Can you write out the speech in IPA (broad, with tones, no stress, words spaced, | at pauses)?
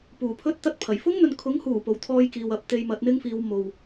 puː˨˩pʰɵ˥t̚t̪ɐ˥t̚pʰɐ˨˩j fʊ˥ŋn̪ɵ˨n kʰʊ˨˥ŋhuː˨˩po˨˩w t̪ʰɔː˥jkiː˨wɐ˨˥p̚ t̪e˧jmɐ˨˥t̚n̪ɪ˥ŋfiː˨˧w mo˨w